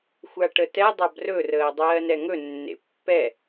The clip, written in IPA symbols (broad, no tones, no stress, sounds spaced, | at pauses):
xʷ a ʈ ə t ɛ dˤ a b r ɵ r əː dˤ ɜː n ɛ ŋ ɵ nː ḛ pː ɛ